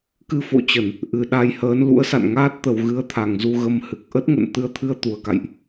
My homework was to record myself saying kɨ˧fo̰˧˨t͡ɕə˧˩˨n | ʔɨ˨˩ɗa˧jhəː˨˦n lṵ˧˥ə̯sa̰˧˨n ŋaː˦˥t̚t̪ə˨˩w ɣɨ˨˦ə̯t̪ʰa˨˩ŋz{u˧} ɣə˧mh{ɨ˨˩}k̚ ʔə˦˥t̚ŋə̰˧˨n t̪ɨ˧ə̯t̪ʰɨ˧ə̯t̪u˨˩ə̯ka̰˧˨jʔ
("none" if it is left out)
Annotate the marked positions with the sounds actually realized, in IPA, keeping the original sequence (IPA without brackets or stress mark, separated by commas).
u˧, ɨ˨˩